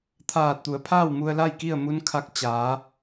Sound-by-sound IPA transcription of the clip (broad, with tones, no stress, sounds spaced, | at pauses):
t̪ʰ aː˧˩ t̚ t̪ u˩˧ ə̯ pʰ aː˥˨ w m u˧ ə̯ l a˥˨ j k i˥˨ ə̯ m u˧˥ n kʰ a˧˥ k̚ t͡ɕ aː˩˧